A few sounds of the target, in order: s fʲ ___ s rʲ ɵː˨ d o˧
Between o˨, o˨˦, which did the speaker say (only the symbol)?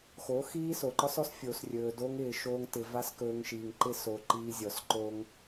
o˨